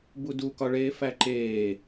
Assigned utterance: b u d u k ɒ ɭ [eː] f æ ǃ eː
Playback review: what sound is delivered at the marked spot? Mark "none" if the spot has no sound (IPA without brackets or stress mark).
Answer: eː